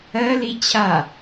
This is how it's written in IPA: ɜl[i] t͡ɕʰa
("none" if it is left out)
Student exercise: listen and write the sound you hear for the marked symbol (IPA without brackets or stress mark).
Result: i